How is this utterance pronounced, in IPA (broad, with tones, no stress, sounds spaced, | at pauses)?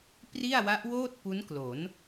p r i˥˩ a̯ w a˦˥ ʔ w oː˥˩ t̚ p u˦˥ n k l o˩˦ n